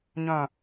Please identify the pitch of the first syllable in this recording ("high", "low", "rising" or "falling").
falling